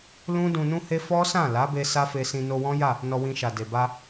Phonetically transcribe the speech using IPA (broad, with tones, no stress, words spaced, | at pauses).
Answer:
lũ˦ dũ˧nũ˦he˦ fɔ˦sã˦˨ la˨˦be˧ sa˦fe˧sĩ˧ no˧wɔ̃˦ja˦˨ | nɔ˧wĩ˧ʃa˨de˨ ba˧